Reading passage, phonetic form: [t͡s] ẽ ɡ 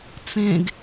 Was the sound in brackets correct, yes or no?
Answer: yes